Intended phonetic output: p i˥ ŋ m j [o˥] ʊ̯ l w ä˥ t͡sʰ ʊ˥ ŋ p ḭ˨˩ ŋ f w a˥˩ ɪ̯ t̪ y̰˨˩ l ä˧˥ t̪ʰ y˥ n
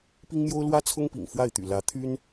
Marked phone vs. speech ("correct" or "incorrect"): correct